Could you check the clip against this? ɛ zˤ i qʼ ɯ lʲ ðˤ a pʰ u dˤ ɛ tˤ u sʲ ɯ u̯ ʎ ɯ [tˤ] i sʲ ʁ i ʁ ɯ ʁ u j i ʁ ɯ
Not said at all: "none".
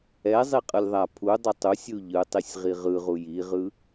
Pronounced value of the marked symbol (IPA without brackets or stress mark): tˤ